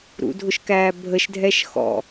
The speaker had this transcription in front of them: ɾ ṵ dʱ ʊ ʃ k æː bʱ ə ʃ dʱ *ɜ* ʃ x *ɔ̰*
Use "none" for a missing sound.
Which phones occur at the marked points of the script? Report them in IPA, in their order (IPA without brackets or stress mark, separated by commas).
ɛ, ɔ̰